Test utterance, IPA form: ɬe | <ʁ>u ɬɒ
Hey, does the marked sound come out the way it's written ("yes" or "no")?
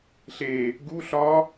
no